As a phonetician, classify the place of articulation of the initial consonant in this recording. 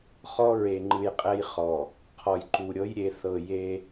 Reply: uvular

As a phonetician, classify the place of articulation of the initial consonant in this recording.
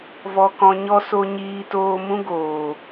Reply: labial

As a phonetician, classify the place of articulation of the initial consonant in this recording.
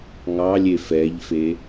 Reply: velar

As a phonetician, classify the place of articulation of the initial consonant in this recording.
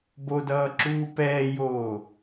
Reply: labial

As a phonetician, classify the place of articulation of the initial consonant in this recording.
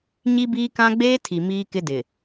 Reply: palatal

